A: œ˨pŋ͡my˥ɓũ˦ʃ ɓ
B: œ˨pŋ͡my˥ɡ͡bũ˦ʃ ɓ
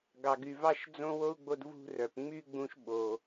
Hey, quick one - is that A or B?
B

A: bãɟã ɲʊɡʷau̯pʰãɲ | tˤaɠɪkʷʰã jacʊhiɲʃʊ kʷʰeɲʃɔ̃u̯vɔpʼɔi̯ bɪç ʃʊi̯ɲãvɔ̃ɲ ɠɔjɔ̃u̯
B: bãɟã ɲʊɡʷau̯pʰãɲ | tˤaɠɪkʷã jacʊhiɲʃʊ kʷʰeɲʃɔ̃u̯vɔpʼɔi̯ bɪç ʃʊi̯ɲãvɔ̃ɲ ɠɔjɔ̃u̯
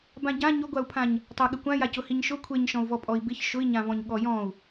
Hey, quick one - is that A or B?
B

